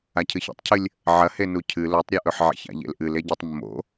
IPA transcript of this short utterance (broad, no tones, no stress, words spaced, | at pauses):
acʰɨçḛtˤcʰɨlʲ | ʕɐhe nucʰɨ lotˤɾʲuʔɵħ ʕḛça̰ʎḛlʔɨl eɟutˤmːo̰